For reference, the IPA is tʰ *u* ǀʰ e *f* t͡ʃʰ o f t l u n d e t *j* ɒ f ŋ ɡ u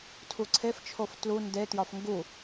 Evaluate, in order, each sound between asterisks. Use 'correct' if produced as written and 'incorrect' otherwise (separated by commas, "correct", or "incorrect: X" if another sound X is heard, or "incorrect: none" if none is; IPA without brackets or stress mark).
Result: correct, correct, correct